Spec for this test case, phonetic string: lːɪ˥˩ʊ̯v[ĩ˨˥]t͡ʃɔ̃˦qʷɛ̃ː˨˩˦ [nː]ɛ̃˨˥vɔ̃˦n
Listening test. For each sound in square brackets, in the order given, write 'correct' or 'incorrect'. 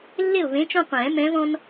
incorrect: ẽ˨˥, incorrect: m

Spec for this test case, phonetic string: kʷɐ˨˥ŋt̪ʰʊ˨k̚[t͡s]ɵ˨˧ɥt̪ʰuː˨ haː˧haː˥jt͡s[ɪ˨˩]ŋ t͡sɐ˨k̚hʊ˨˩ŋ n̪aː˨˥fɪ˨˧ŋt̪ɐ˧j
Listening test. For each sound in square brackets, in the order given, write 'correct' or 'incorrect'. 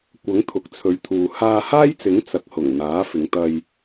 incorrect: t͡sʰ, incorrect: ɪ˨˥

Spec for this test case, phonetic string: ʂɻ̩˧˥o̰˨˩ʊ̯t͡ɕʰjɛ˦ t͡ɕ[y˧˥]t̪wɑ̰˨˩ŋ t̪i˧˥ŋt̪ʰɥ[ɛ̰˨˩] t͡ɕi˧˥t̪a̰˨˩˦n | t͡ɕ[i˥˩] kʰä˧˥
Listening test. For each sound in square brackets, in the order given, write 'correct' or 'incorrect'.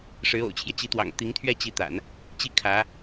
incorrect: i˧˥, incorrect: ɛ˥˩, correct

